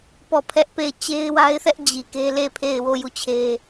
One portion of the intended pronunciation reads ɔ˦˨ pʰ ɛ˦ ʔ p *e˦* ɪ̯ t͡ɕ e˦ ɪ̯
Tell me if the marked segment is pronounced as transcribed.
no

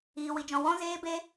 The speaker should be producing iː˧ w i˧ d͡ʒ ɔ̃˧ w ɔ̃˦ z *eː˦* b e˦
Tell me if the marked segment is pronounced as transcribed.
yes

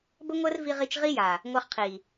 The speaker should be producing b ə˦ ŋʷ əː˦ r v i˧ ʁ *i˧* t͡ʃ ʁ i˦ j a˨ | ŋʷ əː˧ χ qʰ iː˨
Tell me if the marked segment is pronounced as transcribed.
yes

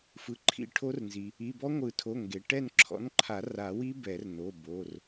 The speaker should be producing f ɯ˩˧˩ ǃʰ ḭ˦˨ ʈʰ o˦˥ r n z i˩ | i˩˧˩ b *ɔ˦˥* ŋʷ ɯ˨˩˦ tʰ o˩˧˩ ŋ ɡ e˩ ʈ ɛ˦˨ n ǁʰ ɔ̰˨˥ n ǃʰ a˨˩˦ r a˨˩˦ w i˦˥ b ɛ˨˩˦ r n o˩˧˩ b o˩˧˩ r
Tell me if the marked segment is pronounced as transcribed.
yes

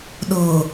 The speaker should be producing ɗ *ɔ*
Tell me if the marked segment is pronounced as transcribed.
no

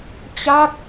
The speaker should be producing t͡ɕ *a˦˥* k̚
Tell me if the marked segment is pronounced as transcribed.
yes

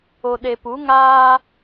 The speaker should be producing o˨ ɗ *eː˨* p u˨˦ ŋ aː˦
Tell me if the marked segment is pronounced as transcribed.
no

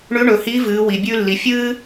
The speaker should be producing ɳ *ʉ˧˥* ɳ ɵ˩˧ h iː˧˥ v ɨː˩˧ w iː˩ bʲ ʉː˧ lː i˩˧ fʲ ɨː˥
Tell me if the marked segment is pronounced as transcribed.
yes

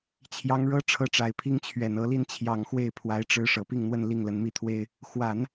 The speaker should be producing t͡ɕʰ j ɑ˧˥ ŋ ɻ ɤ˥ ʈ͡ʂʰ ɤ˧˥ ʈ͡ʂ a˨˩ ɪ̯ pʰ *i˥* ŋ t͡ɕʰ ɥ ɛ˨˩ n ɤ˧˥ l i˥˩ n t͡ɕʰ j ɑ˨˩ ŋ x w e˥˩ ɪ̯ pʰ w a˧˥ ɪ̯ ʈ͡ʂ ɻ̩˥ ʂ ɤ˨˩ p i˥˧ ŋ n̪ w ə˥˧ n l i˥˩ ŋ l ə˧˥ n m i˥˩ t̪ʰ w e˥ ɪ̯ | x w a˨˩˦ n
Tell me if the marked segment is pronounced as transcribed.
yes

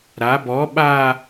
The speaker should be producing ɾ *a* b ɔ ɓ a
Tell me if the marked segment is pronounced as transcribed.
yes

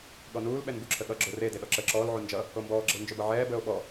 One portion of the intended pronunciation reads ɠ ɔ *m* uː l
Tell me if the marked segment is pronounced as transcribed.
no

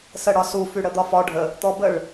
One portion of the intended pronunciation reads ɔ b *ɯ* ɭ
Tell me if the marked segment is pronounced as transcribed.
no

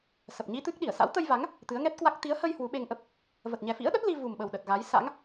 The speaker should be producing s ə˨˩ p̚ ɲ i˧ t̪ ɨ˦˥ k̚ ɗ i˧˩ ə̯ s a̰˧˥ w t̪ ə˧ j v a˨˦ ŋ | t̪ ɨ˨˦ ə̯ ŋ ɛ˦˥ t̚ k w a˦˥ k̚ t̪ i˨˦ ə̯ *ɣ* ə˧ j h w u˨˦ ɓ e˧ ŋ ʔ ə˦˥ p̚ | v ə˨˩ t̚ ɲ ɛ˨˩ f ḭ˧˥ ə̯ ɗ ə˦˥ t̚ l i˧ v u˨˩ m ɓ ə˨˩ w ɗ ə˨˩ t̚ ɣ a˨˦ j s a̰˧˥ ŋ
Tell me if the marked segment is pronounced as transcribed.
no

